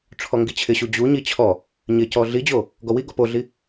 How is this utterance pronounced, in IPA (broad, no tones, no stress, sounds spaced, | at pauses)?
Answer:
ʈ͡ʂʰ ɔ ŋ ɡ i t͡ɕʰ ɪ ɕ u d͡ʑ u ɲ i t͡ɕʰ ɔ | ɲ ɪ c ɔ ɮ i d͡ʑ o | ɡ ɔ w i ɡ ɔ p o ɮ i